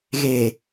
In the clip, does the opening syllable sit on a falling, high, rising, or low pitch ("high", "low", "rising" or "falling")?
low